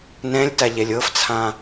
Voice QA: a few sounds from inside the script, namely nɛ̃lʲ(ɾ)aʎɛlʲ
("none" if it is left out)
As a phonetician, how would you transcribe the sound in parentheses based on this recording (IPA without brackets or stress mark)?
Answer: t